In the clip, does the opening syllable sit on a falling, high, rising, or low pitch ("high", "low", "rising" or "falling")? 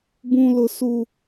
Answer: high